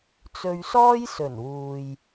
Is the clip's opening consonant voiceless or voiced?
voiceless